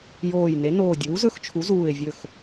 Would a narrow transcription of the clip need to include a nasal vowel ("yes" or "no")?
no